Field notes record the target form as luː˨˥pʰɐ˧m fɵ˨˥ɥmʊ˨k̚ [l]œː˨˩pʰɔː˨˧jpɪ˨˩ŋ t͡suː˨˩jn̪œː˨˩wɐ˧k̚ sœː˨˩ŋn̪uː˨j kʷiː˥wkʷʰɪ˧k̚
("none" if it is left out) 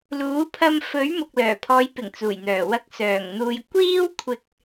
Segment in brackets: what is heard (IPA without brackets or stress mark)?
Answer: l